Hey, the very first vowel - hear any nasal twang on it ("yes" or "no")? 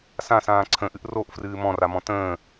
yes